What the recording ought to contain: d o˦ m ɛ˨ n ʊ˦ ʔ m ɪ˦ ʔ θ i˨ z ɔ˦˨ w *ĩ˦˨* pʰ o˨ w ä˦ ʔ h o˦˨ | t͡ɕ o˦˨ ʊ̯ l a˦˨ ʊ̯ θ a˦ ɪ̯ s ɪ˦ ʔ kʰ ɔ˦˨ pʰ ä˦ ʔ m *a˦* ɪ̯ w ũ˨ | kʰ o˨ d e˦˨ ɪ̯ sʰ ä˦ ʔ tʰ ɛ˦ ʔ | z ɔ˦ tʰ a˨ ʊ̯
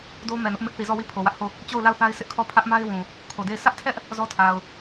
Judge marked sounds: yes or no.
no, yes

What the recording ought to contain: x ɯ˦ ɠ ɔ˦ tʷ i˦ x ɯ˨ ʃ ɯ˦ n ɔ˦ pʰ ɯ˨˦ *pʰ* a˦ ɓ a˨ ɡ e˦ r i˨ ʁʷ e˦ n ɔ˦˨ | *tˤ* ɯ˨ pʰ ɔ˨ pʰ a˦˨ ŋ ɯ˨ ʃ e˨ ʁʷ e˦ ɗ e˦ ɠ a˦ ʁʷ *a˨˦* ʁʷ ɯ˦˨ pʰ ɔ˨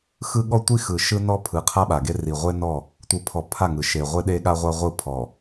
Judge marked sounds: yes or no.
no, no, no

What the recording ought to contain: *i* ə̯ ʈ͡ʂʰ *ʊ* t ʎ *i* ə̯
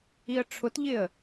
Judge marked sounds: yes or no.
yes, yes, no

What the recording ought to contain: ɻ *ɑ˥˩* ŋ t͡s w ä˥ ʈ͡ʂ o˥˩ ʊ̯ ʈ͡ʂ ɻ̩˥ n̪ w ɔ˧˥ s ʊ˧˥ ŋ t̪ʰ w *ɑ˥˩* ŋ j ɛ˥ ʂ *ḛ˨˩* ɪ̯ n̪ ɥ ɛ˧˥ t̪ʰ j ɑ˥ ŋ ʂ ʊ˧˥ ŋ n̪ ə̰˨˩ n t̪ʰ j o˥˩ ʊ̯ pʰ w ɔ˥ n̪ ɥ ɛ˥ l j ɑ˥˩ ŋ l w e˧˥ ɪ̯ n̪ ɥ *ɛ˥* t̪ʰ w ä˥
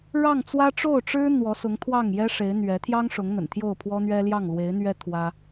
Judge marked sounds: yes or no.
yes, yes, no, yes

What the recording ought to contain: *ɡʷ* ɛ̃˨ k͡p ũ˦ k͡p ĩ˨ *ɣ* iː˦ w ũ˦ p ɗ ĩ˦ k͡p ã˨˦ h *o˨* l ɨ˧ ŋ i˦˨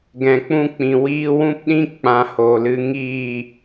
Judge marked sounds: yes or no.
no, no, yes

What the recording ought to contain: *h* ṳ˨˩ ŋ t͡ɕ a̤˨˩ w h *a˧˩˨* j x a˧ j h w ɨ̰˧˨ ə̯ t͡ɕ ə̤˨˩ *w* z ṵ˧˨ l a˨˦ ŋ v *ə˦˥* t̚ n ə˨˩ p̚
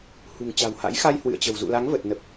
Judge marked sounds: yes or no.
yes, no, yes, no

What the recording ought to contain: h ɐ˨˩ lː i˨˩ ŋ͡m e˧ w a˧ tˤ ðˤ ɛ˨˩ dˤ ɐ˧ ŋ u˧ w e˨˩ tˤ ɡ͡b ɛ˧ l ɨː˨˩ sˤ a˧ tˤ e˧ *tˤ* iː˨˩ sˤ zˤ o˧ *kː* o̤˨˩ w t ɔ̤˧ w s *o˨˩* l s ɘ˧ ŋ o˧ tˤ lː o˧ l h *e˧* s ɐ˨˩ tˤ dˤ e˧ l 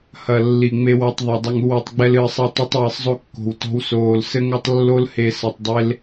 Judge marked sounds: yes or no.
yes, yes, no, no

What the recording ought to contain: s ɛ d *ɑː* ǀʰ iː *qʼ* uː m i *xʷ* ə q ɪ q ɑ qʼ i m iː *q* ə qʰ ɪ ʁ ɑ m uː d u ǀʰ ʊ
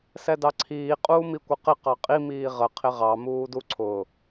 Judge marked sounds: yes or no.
no, yes, no, no

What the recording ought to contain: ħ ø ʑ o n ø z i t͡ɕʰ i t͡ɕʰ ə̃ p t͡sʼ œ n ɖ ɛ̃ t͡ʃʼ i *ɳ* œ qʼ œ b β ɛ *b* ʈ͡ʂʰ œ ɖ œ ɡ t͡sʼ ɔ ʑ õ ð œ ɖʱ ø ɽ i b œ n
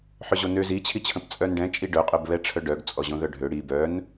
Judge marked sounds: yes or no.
no, no

